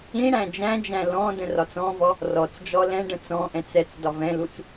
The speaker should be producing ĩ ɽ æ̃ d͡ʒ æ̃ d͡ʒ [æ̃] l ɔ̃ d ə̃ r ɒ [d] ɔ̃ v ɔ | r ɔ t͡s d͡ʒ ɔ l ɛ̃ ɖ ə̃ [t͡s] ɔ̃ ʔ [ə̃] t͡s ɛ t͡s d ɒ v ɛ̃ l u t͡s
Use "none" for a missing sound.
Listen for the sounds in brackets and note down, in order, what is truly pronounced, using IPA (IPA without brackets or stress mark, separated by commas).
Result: æ̃, t͡s, t͡s, ɛ̃